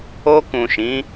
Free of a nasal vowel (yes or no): no